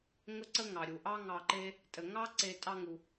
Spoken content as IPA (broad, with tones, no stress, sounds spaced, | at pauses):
ŋ ə˥ ǀ ə˥ ŋ ɑ˩ ɾʲ u˩ ʔ ɑ˦ ŋ ɑ˨ ǃ e˦ | tʼ ə˩ ŋ ɑ˥ ǀ e˨ tʼ ɑ˥ ŋ u˨